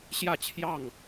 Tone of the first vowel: falling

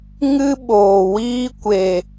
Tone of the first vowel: high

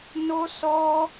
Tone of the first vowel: high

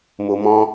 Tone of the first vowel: low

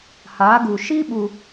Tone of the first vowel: rising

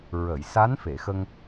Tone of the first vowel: low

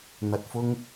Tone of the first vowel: low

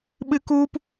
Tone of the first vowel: high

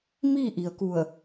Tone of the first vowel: falling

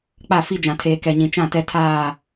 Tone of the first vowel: falling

